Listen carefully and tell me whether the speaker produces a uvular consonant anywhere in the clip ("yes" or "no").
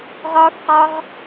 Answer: yes